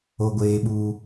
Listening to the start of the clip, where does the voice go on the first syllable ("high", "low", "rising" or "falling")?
low